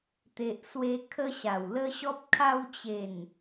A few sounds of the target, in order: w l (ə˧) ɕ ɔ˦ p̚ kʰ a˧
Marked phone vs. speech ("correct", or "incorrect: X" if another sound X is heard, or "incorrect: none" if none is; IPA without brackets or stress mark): incorrect: ə˦